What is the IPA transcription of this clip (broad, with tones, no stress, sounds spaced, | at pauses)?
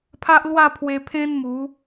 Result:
pʰ a˦ ʔ l w a˥˧ pʰ w e˧ pʰ ẽ˦ n m u˨˦